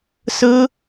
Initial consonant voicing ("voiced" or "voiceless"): voiceless